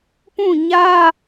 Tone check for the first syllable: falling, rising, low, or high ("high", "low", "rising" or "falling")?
falling